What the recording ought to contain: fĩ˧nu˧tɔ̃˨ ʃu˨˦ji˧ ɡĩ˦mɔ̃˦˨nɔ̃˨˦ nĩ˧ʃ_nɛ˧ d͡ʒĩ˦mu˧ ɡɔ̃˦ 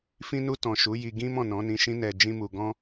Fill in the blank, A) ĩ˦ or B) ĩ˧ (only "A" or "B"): A